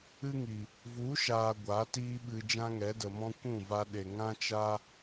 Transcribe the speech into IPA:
ɨ˦ ŋ i˨ | v u˨˦ ʃ aː˨ ɡʷ a˨˦ t iː˦ ɓ ɨ˧ d͡ʒ ã˦ ŋ ɛ˨˦ d ə˨ m ɔ̃˦ kʷ ũ˦˨ v a˧ ɗ e˨ ŋ ã˦ t͡ʃ a˦

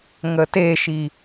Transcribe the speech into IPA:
ŋ ə t e ʃ i

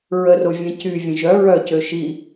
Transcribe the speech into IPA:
ɹ ə r o vʲ ɛ̃ c y vʲ ə̃ ʒ œ ɹ œ c ø ʃ i

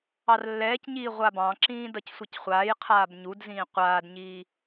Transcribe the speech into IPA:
ɑ r lː ɛː c ɲ iː ʁʷ a b ɑ̃ ǁ ĩː d ʌ c sʷ ʌ c χʷ aː j qʰ aː b ɲ u d z ĩː qʷ aː d ɲ iː

